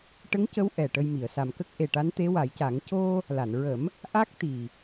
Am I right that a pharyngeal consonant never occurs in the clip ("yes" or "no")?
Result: yes